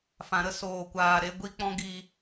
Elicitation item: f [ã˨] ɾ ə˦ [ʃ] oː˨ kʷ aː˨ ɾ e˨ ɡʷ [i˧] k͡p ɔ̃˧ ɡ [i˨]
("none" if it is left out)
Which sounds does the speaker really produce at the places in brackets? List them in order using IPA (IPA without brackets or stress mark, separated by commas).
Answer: ã˨, s, i˧, i˨